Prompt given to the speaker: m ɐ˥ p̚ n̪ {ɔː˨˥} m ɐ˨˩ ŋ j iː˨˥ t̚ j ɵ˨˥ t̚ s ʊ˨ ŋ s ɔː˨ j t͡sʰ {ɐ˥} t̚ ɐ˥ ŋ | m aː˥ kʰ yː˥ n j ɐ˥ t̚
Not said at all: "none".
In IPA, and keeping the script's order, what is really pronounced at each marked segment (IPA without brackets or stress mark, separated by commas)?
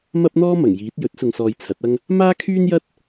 ɔː˥, ɐ˨˥